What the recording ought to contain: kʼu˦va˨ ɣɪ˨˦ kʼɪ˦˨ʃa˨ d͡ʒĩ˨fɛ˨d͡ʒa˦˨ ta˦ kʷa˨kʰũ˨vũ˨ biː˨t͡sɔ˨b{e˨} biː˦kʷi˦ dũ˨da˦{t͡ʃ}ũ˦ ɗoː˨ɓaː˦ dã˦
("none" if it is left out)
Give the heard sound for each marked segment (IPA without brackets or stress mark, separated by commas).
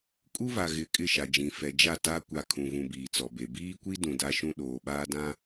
e˨, ʃ